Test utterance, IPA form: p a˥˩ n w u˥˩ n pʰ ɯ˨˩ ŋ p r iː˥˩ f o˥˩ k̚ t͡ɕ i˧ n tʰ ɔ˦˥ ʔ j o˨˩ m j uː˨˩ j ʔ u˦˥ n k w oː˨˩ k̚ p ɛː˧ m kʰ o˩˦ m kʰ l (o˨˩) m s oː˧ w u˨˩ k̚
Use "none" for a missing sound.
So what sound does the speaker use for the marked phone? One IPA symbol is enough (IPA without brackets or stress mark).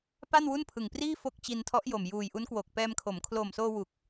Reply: o˨˩